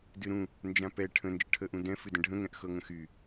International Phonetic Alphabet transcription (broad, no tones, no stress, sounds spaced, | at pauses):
d ɨ ɾ ũ | n d͡ʒ ã p ɛ ʈʰ ə̃ n d͡ʒ ə ʈʰ ə ʔ ũ d ɛ̃ f ɨ d ə̃ ɖʱ ə̃ ŋ ɛ̃ ʔ x ɤ ŋ ə̃ x y